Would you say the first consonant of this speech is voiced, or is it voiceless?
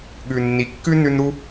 voiced